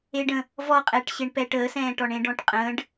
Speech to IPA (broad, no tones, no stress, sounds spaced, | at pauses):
e ɖ ə̃ | v ɔ qʼ ɛː ʈ ɕ e ɳ p ɛ ʈ əː s ɛ̃ː ʈ ɔ ɳ ẽ ɖ ɔ̃ ʈ qʼ ə̃ː ɖ